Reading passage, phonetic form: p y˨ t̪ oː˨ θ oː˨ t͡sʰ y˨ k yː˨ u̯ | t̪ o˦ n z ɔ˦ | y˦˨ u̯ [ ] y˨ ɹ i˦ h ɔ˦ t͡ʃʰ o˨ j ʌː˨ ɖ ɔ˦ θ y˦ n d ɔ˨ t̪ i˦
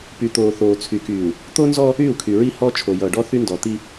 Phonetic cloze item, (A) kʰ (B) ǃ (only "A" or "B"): A